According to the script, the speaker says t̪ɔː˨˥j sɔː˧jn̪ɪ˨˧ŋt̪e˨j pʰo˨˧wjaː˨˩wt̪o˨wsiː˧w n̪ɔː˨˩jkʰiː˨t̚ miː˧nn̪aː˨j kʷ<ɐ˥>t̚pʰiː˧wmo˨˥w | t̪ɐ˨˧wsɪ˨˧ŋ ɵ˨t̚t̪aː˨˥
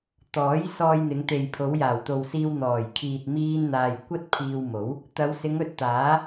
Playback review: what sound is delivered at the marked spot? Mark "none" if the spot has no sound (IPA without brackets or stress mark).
ɐ˥